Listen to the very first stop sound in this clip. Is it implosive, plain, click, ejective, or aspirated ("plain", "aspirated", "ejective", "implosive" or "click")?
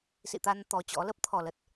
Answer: plain